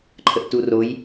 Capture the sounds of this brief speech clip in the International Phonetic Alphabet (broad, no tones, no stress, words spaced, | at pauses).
ǃʰəʔturoj